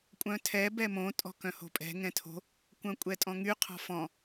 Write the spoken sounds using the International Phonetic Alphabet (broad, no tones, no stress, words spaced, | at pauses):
kʷʼœ̃tʰɛ bɛmõ tʼɔ̤kœ̃ho̤pʼɛ̤ ŋɛ̃tʰo̤ | kʷœ̃kʷʼɛtʼɔ̃ŋy qʰɔ̤fɔ̃